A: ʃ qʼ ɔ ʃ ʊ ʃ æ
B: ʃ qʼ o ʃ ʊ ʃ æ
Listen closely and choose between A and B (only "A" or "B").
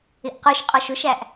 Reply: A